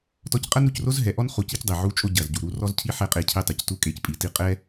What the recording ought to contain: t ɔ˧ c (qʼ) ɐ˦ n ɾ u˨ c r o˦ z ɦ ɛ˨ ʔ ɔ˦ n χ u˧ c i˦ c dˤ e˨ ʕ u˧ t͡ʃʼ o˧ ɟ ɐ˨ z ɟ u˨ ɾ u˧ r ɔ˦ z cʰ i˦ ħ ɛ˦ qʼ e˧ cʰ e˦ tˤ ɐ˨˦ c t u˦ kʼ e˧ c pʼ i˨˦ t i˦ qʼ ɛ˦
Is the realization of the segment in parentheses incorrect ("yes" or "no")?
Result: no